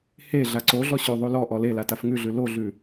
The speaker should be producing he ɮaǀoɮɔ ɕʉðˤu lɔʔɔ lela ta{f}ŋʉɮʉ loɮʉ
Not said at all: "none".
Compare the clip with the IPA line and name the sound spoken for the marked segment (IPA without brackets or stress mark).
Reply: f